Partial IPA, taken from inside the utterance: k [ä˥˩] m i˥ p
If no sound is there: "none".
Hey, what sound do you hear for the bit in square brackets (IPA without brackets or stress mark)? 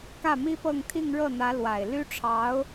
ä˥˩